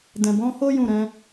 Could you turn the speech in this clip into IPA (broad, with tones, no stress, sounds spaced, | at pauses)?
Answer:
d ɛ̃˨ b ɔ̃˨˦ h o˦ j ũ˦˨ ɾ ɛ̃˨˦